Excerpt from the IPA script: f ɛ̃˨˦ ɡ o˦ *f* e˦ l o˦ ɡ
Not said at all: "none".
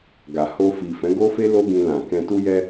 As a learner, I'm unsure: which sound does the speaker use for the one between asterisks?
f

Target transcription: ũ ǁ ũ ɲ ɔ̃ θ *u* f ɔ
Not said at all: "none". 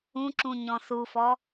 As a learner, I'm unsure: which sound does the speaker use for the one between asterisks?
u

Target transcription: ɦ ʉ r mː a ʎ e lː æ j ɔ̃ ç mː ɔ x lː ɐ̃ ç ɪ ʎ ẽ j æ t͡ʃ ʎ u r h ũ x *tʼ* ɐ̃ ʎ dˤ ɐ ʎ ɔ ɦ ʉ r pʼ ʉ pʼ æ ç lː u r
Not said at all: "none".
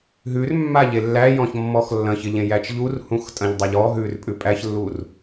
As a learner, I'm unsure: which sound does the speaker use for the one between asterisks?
tʼ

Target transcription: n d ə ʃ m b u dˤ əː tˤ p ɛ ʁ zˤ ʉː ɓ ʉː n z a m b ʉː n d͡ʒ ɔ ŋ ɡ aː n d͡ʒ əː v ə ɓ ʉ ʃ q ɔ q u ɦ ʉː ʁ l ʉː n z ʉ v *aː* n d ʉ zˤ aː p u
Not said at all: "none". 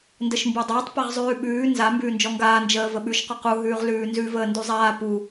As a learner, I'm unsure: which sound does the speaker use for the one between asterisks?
əː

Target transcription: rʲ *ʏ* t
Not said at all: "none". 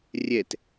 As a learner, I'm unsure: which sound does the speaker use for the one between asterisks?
ɛ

